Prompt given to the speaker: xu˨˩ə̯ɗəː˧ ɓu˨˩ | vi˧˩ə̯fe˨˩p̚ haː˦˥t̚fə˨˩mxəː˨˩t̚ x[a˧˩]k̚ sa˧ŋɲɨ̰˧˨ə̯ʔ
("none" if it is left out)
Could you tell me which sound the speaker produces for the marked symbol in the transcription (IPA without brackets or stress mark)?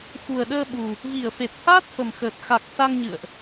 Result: a˨˩